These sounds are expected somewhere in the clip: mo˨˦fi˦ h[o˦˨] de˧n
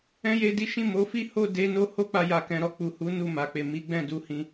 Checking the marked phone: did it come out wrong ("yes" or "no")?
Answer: no